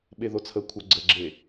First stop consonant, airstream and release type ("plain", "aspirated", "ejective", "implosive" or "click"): implosive